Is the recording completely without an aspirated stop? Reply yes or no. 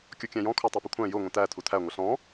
no